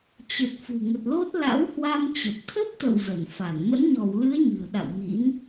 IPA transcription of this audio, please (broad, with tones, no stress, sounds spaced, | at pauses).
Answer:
t͡ɕ ə˨˩ t̚ f ṳ˨˩ ŋ ə˨˩ t̚ l o˦˥ t̚ l a̰˧˥ w h w a˧ m t͡ɕ ə˨˩ p̚ t̪ʰ ə˦˥ p̚ t̪ ə̰˧˨ w z ə˧˩ n f a˧˩ n m ə̰˧˥ n ɲ ɔ˧˩ w l ɨ˨˦ ə̯ ɲ ɨ̤˨˩ ə̯ ɗ a̰˧˨ w m ḭ˧˥ n